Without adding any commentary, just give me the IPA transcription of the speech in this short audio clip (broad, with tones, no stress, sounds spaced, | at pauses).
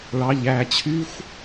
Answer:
ɭ ɑ˩˧˩ ʎ æ˧˩ t͡ɕʰ y˦˥ xʷ